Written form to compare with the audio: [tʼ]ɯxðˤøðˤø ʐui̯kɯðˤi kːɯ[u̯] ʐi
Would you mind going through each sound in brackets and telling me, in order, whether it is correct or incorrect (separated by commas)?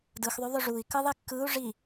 incorrect, correct